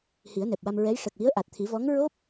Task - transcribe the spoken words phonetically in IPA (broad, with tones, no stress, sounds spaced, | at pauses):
h i˨˩˦ ə̯ n ɛ˨˩ p̚ w a˧ m ɹ ɛ˧˥ j ʂ ə˨˩ k̚ w i˧˥ ə̯ ʔ a˨˩ t̚ t̪ʰ i˨˩˦ v ɔ˧˥ ŋ ɹ o˦˥ p̚